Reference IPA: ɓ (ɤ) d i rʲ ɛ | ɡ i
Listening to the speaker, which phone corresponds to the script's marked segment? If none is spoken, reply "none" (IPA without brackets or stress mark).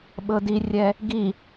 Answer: ɤ